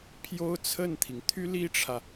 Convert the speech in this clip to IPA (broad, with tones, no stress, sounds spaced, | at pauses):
pʰ j o˥ ʊ̯ t͡sʰ ə˥˩ n t̪ʰ i˩ ŋ t̪ʰ y˥ l i˥ ʈ͡ʂʰ ä˨